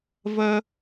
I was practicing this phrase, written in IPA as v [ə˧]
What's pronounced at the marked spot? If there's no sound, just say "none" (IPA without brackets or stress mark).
ə˧